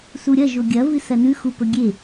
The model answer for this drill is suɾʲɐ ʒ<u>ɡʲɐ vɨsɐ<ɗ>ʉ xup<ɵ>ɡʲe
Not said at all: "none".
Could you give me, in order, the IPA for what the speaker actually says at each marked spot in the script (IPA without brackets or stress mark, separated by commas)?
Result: o, n, ɵ